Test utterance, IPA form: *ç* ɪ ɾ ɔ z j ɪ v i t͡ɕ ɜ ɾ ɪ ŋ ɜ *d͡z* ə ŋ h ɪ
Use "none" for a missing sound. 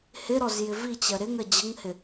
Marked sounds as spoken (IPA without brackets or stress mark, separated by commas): h, d͡ʑ